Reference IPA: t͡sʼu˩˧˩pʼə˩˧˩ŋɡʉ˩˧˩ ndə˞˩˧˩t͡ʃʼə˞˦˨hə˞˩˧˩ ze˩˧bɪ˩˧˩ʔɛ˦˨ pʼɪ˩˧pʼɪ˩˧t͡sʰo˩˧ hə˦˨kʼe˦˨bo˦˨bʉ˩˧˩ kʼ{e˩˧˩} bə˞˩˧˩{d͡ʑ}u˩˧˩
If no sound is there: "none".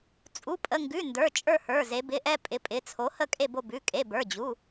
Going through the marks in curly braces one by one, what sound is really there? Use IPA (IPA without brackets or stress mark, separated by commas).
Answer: e˩˧˩, d͡ʑ